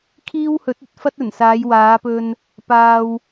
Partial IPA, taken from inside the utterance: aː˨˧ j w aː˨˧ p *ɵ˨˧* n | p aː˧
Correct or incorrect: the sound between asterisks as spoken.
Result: incorrect: ɵ˧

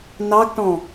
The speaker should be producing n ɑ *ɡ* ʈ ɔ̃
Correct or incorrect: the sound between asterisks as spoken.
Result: correct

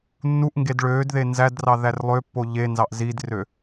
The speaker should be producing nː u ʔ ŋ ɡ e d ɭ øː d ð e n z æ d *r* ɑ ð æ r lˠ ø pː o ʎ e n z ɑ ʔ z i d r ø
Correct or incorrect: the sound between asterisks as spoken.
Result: correct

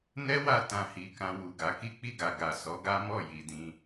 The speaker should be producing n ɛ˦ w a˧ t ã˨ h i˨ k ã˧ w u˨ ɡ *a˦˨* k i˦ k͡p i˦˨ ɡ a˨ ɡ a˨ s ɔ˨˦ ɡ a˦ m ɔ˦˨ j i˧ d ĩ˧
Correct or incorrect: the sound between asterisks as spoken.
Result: incorrect: a˨˦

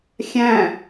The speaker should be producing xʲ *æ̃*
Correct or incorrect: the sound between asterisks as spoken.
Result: correct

